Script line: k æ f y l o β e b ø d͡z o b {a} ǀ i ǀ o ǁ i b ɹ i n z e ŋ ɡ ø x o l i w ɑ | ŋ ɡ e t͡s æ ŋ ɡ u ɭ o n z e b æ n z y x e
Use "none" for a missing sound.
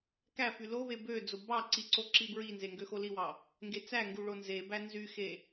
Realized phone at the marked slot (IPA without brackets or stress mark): ɑ